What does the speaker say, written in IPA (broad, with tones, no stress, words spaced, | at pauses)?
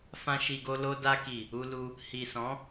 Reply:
fã˧ ʃi˨ɡo˧lo˧ da˧ki˨ | u˧lu˧ | hi˨sɔ̃˨˦